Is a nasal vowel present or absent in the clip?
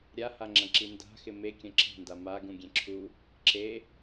present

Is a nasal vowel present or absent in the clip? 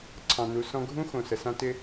present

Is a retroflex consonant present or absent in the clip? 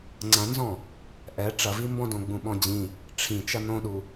present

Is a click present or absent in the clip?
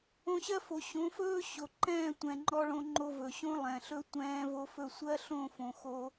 present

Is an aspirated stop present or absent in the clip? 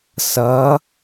absent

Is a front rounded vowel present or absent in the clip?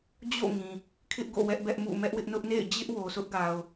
absent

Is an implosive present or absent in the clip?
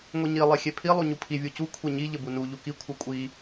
absent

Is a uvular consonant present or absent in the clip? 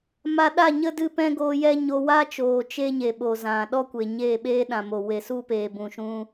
absent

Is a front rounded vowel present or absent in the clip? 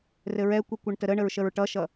absent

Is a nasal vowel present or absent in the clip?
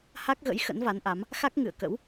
absent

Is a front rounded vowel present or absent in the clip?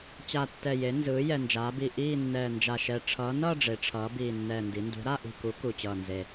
absent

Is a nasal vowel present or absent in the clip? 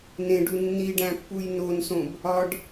present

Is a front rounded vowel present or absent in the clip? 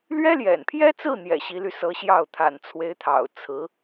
present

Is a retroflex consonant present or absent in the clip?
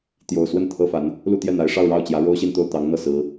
present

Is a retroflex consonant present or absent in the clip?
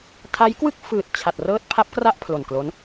absent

